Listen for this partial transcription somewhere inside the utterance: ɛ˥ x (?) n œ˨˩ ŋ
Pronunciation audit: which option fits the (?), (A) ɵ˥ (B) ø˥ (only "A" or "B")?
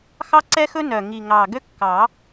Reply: A